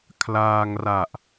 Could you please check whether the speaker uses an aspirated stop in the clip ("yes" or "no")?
yes